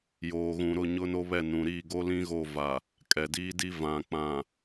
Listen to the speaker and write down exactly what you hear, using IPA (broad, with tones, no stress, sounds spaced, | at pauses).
j oː˨ ɣ ũ˨ ɾ ʊ˦˨ ɲ ʊ˦ n o˦ β ɛ˦˨ n ũ˨ ɾ iː˦˨ ɡ o˦ l ĩ˦ ɣ o˦˨ v a˨ | kʼ ɛ˨ d iː˦ d i˦ v ã˨ k͡p ã˨